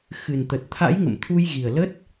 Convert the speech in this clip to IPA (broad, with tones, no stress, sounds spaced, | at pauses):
x ɨ˨˩ n t̪ ə˨˩ t̚ t̪ʰ a̰˧˥ j ŋ ə̰˧˨ m t̪ʰ u˧ j ɣ i˨˩ ə̯ l ə˦˥ t̚